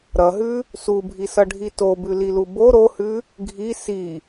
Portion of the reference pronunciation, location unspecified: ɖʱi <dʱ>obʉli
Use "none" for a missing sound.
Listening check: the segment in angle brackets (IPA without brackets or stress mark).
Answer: t